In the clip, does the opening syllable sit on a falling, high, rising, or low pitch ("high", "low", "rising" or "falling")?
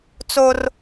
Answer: high